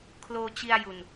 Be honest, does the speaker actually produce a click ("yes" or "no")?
no